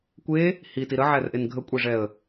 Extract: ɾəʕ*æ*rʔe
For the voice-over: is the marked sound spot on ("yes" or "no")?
yes